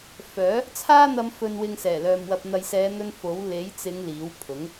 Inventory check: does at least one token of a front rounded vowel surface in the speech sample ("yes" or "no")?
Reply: yes